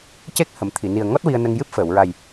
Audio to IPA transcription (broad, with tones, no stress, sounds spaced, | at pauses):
c e˦˥ k̚ h ə˨˩˨ m t̪ʰ i˨˩˨ n i˨˩ ə̯ ŋ ɔ˦˥ t̚ w i˧ ə̯ n ə˧ ŋ j ɨ˦˥ p̚ f əː˨˩˨ w ɹ a˨˩ j